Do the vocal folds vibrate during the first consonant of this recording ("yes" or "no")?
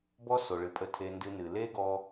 yes